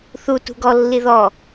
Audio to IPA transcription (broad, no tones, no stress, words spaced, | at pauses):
θu tṳɡɔlːi ðɔ